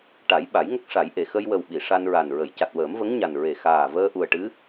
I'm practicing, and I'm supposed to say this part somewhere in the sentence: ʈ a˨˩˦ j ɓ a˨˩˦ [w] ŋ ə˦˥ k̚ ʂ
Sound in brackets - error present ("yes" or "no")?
yes